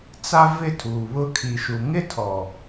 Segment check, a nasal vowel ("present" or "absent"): absent